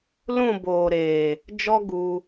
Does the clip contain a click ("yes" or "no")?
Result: no